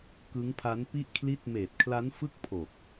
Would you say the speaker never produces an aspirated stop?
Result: no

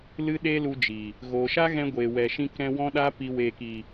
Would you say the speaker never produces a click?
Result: yes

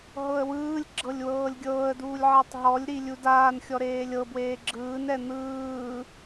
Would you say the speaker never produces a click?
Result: no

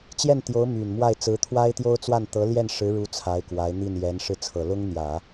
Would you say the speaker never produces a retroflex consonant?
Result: no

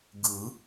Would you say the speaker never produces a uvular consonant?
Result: yes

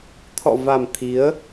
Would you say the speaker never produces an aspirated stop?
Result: no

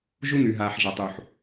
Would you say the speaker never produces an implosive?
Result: yes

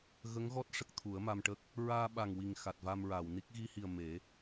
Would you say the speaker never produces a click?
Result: yes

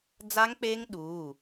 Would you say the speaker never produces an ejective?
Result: yes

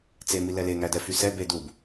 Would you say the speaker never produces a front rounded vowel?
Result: no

